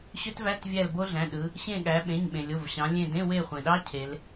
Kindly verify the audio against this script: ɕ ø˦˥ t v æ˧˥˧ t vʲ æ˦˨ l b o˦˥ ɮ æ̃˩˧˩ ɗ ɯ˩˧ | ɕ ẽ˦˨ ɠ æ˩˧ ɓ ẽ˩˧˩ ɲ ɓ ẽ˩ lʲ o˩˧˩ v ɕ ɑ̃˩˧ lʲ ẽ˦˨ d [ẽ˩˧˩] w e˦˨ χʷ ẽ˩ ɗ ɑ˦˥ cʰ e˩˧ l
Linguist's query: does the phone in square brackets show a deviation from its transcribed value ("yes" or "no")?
yes